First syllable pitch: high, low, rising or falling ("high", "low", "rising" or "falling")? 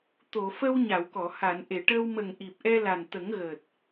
low